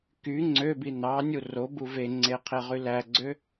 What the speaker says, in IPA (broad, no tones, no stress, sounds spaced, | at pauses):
k y ŋ͡ǀ ø b i n ɑ nʲ u r o b u v e ŋ͡ǀ e qʰ e ʁ y l æ ɡ͡ǀ ø